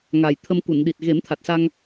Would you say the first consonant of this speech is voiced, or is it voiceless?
voiced